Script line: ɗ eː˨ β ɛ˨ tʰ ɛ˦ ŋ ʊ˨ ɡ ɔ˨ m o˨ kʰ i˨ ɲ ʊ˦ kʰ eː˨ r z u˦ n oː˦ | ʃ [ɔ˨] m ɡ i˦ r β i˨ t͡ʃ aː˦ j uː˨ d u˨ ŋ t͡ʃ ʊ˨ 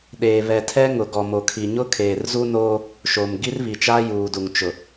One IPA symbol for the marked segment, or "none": o˨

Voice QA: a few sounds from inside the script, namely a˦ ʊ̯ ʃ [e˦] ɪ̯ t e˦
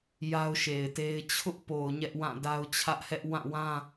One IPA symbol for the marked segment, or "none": e˨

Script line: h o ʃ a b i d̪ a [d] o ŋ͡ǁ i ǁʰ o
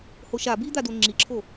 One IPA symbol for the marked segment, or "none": d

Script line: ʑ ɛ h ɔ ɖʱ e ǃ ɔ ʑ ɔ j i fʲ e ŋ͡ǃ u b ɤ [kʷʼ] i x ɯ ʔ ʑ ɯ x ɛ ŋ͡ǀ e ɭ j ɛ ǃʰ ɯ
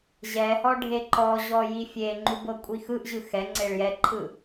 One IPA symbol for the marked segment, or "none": kʷʼ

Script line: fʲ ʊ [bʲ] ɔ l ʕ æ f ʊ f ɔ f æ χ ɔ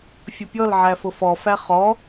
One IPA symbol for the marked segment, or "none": pʲ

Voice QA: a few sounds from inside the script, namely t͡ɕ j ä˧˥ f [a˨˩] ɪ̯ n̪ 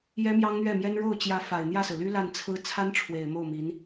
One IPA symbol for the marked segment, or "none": a˨˩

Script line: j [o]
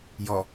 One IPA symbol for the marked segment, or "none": ɔ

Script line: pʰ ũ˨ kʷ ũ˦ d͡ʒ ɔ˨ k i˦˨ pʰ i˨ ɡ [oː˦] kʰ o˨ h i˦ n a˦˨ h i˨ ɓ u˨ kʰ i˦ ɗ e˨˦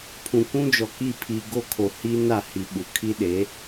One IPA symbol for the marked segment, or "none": o˦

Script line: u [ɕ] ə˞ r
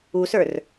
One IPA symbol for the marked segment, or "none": s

